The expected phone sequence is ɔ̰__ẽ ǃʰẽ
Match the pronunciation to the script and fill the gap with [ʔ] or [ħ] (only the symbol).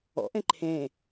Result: ʔ